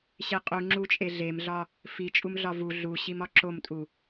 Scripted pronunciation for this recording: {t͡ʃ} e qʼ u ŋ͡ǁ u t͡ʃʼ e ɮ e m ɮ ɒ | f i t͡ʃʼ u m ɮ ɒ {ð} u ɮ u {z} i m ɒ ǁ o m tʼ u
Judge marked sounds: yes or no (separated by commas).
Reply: no, no, no